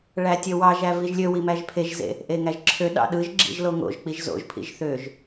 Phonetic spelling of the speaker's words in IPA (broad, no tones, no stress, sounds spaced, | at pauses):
ɭ æ tʲ ø w ɑ ʒ æ v i ʒ lʲ ø w i m æ ʒ pʰ e ʒ z ḛ | ʔ e ŋ æ ʒ ǁʰ ø ɗ ɑ̰ ɗ ɯ ʒ ɡ͡ǁ ḭ ʒ l o ŋ o̰ ʒ k͡p i ʒ z o̰ ʒ pʰ ḭ ʒ θ ø ʒ